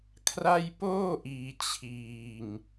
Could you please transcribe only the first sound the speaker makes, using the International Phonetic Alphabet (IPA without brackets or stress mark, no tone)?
kʰ